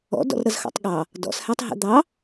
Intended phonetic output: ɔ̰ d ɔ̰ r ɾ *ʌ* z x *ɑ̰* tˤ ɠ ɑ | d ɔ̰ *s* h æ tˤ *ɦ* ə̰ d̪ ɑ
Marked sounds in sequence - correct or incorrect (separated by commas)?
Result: correct, correct, correct, correct